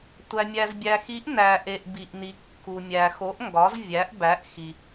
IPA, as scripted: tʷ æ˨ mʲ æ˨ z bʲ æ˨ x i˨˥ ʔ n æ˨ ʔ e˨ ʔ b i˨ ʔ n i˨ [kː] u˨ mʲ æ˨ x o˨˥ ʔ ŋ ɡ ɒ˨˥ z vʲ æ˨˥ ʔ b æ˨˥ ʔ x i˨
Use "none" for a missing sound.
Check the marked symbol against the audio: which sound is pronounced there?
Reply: kː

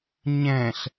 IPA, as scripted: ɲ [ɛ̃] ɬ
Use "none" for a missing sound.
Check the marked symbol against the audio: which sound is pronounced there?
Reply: ɛ̃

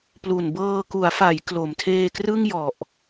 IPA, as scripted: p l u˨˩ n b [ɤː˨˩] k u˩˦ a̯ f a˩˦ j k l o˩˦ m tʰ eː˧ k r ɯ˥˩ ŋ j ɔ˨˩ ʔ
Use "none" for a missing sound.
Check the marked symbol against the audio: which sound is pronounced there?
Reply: ɤː˧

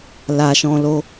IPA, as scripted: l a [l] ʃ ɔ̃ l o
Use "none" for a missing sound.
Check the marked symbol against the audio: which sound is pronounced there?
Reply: none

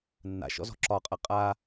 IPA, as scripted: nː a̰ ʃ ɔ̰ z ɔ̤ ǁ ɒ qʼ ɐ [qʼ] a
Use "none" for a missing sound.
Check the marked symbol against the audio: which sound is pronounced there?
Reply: qʼ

